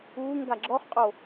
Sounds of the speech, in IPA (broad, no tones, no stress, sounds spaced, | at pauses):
uː ŋ ɡ a ɡ͡ǁ ɔ χ qʼ o